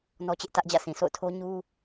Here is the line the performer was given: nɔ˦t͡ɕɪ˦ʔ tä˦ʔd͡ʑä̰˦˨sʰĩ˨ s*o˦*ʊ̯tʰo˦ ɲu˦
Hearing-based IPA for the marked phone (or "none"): o̰˦˨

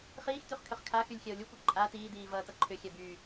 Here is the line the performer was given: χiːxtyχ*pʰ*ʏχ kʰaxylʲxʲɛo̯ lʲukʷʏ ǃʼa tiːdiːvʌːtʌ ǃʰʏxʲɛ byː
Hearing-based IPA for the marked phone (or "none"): kʰ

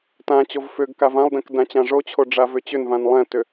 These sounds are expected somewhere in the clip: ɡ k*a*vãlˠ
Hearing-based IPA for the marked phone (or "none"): a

